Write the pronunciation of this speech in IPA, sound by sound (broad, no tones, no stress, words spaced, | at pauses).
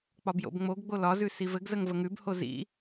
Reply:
k͡pɒbjo̰bŋ͡moɡɡ͡bo lɒzʉ sivɘɡzəŋ vəŋʉbho zḭ